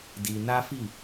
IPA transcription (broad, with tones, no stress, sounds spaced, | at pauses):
d i˧ n a˦ f i˦˨